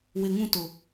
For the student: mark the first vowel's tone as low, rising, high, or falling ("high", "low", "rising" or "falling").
low